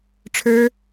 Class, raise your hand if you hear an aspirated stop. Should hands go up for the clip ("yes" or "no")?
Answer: yes